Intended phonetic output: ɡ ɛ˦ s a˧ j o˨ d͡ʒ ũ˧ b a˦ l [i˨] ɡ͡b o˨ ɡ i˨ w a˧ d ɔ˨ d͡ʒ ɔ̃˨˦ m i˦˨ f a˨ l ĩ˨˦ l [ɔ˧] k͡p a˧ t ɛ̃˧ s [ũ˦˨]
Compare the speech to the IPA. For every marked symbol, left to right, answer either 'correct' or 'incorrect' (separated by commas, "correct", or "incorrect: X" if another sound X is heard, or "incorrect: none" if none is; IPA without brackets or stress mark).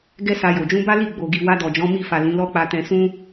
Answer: incorrect: i˦˨, incorrect: ɔ˦, incorrect: ũ˦